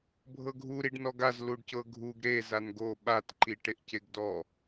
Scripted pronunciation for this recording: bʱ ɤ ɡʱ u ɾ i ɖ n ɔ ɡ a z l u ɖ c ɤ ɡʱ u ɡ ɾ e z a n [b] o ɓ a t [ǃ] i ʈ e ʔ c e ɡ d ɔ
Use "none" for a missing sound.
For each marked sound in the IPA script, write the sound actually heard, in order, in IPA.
ɡ, ǃ

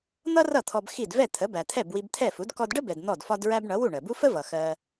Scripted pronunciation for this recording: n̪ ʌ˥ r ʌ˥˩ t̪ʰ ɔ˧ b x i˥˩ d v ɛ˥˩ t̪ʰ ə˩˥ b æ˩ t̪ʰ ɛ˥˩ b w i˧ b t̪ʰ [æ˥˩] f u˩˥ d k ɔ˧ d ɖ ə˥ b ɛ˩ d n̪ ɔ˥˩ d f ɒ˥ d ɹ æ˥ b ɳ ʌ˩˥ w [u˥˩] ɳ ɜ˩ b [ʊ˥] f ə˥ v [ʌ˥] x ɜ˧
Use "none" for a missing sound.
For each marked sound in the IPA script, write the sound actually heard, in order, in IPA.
ɛ˥˩, u˥˩, u˥, ʌ˩

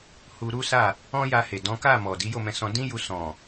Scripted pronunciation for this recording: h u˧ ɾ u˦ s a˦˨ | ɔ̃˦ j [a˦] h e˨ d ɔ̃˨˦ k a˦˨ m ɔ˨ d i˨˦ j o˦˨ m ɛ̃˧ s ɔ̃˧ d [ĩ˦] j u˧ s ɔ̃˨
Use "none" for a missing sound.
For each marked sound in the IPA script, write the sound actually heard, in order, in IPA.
a˧, ĩ˦

